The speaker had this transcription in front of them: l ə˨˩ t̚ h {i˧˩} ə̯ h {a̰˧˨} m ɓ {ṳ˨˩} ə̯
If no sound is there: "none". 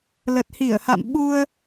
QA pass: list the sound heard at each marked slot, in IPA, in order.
i˧˩, a̰˧˨, u˧

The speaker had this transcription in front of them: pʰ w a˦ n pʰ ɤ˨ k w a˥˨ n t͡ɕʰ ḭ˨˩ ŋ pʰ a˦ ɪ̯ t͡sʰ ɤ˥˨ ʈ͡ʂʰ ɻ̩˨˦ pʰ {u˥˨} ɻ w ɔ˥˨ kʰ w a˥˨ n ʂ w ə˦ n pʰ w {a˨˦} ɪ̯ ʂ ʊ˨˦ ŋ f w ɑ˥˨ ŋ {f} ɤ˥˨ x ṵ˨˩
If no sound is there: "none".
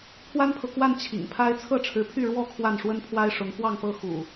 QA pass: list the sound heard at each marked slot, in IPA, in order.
y˥˨, a˦, f

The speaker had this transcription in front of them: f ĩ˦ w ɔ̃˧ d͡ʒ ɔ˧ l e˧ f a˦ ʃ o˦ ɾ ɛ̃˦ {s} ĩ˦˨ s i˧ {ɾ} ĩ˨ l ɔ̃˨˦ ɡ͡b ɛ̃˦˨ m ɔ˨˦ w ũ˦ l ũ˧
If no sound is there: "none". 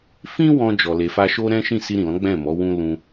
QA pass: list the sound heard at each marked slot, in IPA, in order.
ʃ, ɾ

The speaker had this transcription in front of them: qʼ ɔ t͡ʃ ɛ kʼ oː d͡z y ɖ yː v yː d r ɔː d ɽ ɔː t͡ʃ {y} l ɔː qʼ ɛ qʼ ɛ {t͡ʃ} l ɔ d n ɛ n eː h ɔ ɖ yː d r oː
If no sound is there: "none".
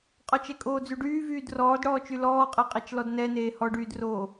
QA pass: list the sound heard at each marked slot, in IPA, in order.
y, t͡ʃ

